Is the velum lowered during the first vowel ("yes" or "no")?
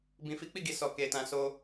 yes